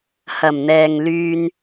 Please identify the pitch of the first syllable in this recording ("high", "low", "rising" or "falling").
low